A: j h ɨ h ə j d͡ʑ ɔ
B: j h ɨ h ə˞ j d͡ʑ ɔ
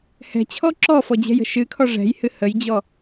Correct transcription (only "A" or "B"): A